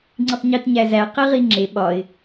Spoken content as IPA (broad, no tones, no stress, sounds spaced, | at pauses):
ŋ͡ǀ i tˤ ɲ i t ɲ æ z æ q i ʁ i ŋ͡ǁ e ɓ ɒ ɪ̯